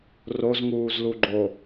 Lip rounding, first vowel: rounded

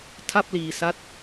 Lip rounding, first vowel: unrounded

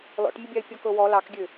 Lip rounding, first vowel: rounded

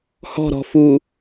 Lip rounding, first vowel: rounded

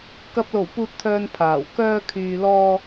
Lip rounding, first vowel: unrounded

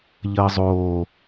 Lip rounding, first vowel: unrounded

